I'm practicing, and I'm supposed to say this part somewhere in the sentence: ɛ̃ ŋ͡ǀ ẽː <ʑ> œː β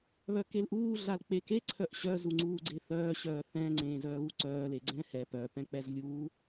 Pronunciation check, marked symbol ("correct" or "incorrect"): incorrect